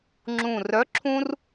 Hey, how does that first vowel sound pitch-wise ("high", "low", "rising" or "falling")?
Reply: low